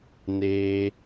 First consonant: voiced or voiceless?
voiced